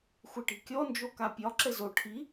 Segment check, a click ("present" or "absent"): present